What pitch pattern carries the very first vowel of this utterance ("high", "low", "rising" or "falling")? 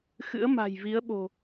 rising